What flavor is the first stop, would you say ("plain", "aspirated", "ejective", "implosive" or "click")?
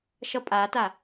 ejective